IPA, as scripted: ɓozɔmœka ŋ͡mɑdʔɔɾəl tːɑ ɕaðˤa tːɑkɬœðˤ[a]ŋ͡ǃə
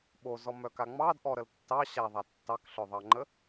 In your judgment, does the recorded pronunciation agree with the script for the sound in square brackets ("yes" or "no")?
no